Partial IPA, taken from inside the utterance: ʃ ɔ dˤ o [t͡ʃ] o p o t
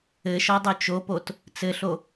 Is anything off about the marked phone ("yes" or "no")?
no